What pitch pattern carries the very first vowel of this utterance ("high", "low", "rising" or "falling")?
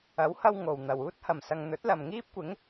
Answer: rising